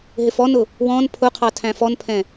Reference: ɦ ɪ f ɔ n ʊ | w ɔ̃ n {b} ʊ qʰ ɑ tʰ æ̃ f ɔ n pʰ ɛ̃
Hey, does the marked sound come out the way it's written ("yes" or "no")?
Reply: no